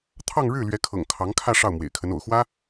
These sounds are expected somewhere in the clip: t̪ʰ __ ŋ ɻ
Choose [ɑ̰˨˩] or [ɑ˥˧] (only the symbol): ɑ˥˧